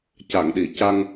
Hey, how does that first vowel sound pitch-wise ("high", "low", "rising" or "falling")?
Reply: low